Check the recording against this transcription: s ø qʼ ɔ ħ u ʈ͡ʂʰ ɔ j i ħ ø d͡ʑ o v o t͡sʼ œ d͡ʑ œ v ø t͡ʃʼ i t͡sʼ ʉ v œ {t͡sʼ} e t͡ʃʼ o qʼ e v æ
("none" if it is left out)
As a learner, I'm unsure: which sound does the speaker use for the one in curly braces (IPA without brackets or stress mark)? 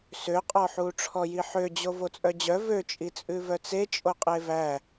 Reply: t͡s